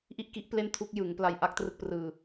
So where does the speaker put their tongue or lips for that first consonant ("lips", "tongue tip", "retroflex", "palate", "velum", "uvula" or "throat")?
throat